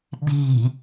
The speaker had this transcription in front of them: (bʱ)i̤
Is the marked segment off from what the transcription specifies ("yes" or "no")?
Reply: yes